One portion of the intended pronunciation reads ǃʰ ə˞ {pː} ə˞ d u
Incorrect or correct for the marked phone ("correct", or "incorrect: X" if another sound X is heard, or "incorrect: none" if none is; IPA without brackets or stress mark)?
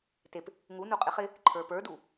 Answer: incorrect: p